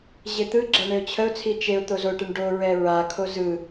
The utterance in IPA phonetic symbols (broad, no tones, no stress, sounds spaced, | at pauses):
ʑ e t̪ ɯ ɡ͡ǁ a ɳ e ʊ̯ t͡ɕʰ ə ʊ̯ t͡sʰ i t͡ʃ e ʊ̯ t̪ o z o ʈ e ɳ ɖ o ɹ ɛ ɹ a kʰ o z ɯ